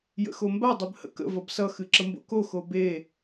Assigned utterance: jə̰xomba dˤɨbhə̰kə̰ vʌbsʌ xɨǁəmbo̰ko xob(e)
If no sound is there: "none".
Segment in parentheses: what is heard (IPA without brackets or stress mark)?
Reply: e